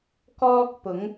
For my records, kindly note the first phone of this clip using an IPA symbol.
k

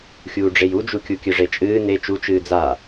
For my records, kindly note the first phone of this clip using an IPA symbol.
xʲ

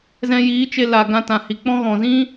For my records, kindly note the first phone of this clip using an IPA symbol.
z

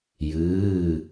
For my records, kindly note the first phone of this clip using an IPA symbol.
j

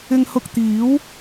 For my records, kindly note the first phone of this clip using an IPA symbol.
ɪ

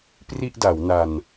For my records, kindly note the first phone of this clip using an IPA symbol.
p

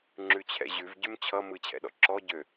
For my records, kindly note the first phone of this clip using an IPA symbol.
ŋ͡ǁ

